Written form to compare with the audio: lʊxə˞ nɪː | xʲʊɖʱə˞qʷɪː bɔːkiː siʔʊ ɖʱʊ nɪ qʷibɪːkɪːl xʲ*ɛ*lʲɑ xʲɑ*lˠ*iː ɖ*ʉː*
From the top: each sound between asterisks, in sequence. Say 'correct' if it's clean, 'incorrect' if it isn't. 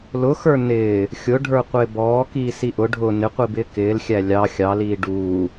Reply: incorrect, incorrect, incorrect

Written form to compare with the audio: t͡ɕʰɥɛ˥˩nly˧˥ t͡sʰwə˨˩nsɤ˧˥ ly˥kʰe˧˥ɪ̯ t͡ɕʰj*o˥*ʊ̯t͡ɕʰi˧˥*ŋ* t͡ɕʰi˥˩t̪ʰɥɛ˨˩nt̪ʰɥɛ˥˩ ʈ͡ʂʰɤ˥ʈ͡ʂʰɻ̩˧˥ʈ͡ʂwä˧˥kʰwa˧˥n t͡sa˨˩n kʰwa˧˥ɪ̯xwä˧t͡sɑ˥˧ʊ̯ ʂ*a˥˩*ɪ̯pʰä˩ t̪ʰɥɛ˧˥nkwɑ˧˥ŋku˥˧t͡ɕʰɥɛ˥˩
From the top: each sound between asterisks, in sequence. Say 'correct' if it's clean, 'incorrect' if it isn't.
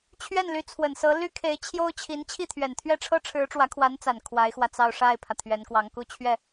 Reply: correct, incorrect, correct

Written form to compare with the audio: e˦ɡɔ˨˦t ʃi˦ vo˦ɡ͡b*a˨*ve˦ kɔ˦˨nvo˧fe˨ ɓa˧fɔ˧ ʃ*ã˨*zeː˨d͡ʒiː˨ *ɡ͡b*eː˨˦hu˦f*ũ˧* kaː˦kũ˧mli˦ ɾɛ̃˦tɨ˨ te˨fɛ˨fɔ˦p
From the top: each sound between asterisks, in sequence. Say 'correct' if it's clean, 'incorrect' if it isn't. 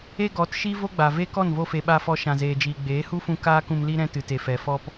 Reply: correct, correct, correct, correct

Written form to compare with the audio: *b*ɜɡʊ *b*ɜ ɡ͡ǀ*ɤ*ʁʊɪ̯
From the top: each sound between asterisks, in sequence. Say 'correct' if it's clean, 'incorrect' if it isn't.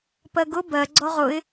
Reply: incorrect, correct, incorrect

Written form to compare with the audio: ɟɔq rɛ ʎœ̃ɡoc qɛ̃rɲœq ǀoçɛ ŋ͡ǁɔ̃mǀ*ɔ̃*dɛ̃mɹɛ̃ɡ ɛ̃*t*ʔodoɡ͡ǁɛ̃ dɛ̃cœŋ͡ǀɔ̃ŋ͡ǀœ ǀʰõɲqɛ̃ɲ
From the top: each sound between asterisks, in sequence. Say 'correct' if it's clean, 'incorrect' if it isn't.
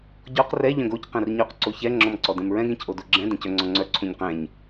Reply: incorrect, incorrect

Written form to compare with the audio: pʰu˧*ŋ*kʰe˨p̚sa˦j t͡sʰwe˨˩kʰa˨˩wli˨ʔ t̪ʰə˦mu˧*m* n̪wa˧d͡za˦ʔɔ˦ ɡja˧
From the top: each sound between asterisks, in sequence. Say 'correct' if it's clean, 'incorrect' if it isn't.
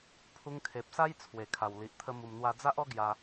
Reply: correct, correct

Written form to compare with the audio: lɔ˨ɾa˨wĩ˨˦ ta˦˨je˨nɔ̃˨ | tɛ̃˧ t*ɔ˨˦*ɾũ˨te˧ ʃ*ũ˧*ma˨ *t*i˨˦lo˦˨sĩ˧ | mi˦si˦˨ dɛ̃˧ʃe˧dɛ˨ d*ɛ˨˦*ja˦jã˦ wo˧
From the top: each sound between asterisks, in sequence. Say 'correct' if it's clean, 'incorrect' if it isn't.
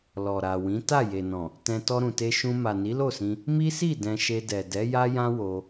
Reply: incorrect, correct, incorrect, correct

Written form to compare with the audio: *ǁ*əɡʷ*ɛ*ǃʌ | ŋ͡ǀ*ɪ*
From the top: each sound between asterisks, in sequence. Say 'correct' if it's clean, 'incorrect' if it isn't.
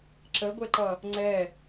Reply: correct, correct, incorrect

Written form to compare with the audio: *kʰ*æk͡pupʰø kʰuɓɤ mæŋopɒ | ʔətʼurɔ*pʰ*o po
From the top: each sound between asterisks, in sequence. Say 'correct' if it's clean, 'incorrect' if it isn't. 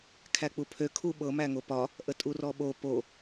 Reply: correct, incorrect

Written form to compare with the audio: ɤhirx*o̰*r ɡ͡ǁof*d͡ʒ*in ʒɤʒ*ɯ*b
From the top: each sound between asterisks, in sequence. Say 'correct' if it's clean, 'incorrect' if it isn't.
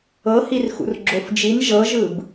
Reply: incorrect, correct, correct

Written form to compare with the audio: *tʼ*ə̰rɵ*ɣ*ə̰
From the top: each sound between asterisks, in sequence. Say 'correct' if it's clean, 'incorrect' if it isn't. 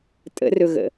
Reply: correct, correct

